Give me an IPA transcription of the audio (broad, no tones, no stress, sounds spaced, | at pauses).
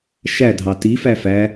ʃ æ dʱ ɑ t i f æ f æ